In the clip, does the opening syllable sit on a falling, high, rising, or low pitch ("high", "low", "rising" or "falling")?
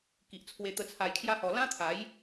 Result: low